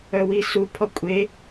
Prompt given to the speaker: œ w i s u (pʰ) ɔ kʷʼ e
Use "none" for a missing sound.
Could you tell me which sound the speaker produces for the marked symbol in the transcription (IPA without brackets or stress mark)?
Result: pʰ